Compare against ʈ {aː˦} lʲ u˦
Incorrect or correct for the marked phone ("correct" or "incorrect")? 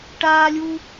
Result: correct